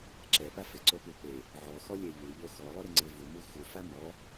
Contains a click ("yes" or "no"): yes